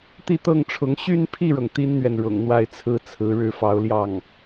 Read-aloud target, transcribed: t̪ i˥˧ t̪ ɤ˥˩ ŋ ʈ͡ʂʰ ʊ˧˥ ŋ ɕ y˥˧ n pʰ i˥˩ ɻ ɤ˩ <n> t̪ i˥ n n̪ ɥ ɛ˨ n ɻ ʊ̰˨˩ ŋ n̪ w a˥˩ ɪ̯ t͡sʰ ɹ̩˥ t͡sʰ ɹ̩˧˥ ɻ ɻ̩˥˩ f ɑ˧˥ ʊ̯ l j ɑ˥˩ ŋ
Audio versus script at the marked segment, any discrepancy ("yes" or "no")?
yes